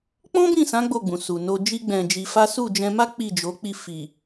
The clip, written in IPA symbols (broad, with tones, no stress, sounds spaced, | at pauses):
k͡p ɔ̃˦ b ĩ˦˨ s ã˨˦ ɡ͡b o˦˨ ɡ͡b ũ˨ s u˨ n o˧ d͡ʒ i˦ ɡ͡b ɛ̃˧ d͡ʒ i˧ f a˦ s u˦˨ d͡ʒ ɛ̃˧ m a˦ k͡p i˦˨ d͡ʒ o˨˦ k͡p i˦˨ f i˨